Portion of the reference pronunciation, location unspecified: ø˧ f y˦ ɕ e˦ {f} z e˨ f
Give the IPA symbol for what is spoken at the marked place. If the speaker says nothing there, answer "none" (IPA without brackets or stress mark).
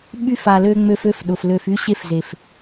f